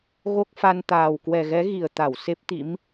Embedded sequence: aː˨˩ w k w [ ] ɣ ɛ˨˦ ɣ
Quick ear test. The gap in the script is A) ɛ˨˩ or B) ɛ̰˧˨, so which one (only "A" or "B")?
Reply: A